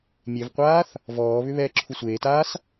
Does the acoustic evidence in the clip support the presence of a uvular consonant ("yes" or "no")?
yes